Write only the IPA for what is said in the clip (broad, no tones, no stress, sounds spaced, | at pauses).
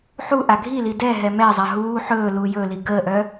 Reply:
ħ u ʔ a ɡʱ i l i d ɛ ɦ ɛ m ɛ zˤ a ɦ uː ħ ɵː l uː j ɵ l i ɡ əː ʔ œ